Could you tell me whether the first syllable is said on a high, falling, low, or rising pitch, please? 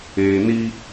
low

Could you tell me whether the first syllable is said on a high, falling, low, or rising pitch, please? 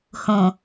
low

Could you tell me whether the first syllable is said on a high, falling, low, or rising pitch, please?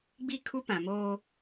falling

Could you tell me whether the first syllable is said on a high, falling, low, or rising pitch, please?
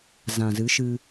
low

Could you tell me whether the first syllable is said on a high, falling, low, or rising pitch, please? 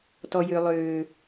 low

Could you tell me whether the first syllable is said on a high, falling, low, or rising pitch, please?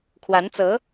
rising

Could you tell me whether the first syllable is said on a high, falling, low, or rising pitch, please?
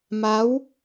rising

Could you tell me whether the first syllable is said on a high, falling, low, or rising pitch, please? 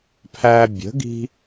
high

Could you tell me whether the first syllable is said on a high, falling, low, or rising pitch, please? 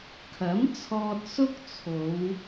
rising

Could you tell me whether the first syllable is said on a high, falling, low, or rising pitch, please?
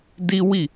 high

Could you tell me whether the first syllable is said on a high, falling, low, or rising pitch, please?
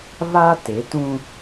high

